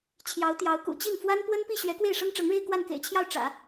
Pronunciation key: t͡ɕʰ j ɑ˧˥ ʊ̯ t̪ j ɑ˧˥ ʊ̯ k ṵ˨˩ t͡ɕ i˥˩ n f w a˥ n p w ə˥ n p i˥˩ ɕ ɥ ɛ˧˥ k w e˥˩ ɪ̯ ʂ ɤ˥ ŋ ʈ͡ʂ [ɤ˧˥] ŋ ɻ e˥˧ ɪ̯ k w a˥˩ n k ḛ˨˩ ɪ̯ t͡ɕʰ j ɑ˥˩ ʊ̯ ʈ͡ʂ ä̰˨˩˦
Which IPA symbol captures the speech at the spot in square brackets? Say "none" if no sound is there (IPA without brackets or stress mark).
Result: ɤ˧˥